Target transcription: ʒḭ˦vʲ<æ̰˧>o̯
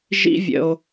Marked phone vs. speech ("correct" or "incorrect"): incorrect